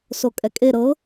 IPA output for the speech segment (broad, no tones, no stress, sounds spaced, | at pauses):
s o kʼ ɛ kʼ e ɾ ɤ